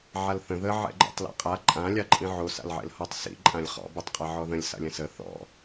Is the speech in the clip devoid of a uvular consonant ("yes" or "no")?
no